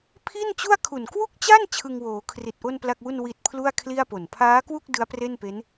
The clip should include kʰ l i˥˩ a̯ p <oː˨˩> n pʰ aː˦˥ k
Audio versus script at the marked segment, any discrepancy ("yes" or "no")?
yes